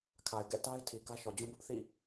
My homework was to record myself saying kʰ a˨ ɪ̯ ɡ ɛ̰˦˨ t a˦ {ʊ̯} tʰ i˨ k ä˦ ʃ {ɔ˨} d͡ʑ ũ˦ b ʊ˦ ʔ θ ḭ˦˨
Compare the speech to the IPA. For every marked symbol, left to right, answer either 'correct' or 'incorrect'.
incorrect, correct

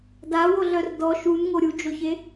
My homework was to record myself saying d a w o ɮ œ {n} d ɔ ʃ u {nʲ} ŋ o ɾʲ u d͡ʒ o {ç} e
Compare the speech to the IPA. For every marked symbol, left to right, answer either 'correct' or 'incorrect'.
incorrect, incorrect, correct

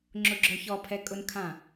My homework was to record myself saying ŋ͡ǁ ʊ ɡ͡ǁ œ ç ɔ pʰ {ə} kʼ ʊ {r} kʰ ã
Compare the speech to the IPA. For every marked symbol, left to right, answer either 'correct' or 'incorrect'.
incorrect, incorrect

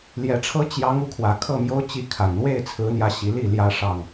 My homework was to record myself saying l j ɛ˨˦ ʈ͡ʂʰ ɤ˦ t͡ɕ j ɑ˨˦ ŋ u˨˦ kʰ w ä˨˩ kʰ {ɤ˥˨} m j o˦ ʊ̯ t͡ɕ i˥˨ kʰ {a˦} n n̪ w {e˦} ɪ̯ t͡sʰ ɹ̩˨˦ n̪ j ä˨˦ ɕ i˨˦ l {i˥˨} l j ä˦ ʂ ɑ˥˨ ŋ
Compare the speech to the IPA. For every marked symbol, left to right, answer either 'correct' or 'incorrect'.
correct, incorrect, incorrect, correct

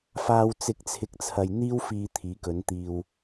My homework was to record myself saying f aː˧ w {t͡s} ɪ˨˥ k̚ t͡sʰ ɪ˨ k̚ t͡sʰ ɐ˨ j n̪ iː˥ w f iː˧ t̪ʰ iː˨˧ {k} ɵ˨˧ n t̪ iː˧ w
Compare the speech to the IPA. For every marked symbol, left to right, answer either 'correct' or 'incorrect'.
correct, correct

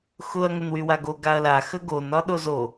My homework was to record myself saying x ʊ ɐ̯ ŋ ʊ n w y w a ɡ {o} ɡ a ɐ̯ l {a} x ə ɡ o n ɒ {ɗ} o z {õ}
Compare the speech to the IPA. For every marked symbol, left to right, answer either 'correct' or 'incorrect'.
correct, correct, correct, incorrect

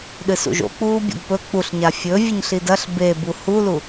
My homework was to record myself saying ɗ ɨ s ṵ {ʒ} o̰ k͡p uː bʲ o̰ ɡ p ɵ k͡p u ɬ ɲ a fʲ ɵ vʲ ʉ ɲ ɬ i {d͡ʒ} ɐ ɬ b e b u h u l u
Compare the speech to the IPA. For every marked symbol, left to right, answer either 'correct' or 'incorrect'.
correct, incorrect

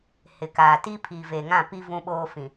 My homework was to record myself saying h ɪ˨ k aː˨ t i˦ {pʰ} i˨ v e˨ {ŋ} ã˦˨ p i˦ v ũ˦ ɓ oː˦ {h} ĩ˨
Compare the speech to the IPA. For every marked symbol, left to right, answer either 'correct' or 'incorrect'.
correct, correct, incorrect

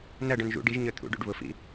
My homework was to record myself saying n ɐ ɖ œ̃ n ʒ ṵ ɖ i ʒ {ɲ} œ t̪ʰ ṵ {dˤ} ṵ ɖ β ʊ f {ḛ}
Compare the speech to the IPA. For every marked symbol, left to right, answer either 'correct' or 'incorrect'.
correct, incorrect, incorrect

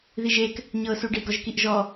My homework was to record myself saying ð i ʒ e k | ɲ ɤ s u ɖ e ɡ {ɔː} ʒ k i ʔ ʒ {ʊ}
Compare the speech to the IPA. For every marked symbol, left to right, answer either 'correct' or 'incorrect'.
incorrect, incorrect

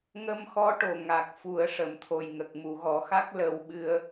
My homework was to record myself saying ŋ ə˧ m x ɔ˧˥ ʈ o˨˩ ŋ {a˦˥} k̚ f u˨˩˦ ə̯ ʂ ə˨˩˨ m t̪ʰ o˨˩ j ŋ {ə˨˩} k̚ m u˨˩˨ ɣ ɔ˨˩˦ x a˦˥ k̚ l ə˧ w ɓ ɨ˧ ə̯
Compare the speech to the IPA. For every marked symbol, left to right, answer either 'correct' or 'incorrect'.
incorrect, correct

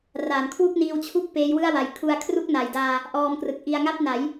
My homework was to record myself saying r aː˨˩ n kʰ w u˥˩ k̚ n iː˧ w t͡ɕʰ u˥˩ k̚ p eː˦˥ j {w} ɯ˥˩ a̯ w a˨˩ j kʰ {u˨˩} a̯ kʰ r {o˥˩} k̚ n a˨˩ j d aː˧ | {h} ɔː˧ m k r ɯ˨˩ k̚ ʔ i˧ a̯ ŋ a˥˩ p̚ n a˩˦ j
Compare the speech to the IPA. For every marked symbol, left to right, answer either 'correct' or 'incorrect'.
correct, incorrect, incorrect, incorrect

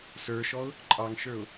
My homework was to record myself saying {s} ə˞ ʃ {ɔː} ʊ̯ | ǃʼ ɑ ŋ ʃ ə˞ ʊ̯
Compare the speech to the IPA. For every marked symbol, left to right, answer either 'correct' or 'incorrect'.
correct, incorrect

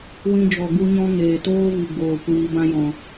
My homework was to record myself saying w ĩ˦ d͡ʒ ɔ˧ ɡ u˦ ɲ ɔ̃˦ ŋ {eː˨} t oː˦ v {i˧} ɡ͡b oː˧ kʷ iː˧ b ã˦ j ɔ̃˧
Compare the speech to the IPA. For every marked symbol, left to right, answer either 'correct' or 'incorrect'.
correct, correct

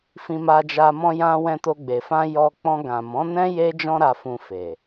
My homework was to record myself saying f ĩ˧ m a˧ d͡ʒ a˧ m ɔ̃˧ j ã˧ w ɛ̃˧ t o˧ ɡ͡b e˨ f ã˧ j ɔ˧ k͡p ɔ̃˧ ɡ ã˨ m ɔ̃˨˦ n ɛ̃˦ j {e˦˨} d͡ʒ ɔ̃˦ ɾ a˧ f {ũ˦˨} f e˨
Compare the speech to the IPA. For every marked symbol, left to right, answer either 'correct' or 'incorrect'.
incorrect, incorrect

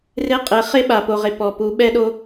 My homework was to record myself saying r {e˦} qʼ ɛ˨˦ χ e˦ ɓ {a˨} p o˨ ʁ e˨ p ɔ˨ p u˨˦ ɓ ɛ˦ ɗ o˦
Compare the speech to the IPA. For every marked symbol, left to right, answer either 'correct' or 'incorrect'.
correct, correct

